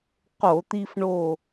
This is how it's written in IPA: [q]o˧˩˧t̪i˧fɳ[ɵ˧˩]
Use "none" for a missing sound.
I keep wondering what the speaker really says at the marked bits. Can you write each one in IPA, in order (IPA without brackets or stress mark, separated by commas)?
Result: q, o˧˩